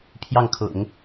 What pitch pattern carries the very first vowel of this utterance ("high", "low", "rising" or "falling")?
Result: falling